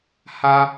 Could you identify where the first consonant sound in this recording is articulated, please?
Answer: glottal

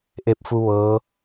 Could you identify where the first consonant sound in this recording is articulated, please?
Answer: glottal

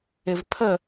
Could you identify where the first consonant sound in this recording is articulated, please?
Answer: labial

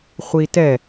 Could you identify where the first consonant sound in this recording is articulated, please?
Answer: uvular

